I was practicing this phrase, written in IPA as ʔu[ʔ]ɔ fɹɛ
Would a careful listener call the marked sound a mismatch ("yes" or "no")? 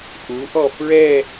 no